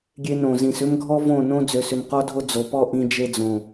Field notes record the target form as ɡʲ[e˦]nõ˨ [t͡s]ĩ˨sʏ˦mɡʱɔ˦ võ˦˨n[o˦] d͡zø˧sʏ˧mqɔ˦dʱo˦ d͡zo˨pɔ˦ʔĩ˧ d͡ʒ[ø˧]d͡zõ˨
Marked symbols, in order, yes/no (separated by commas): no, no, no, no